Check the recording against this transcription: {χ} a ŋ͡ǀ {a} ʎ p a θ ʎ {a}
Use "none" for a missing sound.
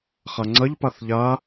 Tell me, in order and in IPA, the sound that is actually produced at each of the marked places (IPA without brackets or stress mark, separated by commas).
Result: χ, ɐ, a